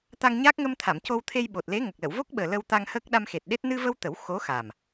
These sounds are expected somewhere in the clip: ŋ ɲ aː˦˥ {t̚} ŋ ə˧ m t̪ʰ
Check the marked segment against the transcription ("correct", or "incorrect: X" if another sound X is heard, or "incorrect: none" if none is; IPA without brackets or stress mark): incorrect: k̚